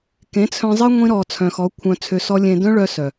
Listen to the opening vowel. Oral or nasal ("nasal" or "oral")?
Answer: nasal